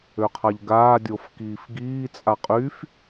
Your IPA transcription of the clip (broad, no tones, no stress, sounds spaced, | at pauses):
ø qʰ a ʎ ɡ aː dʲ o f k iː f ɡ iː t͡sʼ a qʼ y f